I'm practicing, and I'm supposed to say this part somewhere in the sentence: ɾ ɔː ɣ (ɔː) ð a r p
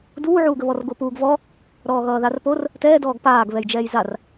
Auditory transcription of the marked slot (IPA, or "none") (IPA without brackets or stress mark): ʌː